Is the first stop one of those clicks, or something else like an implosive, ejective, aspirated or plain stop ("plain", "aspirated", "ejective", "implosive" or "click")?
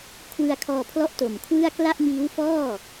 aspirated